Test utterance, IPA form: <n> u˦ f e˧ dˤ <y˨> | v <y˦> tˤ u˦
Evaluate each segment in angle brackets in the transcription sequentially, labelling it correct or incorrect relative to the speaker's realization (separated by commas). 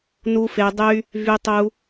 correct, incorrect, correct